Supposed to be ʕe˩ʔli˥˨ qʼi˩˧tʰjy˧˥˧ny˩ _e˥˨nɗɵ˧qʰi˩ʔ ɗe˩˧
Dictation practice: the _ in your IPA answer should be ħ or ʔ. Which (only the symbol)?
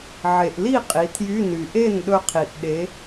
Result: ʔ